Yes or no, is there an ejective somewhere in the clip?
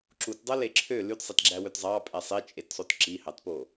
yes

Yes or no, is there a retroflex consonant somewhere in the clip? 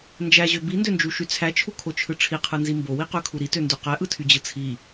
yes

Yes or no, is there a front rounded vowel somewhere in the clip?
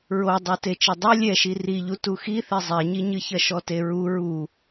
no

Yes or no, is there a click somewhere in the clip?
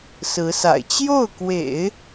no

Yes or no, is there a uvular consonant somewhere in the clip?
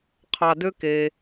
yes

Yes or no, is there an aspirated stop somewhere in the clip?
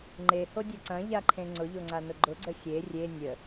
yes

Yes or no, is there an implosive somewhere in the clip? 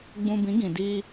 no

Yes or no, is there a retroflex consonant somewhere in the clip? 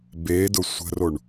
yes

